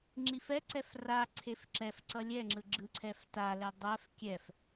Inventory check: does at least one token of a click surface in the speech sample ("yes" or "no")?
yes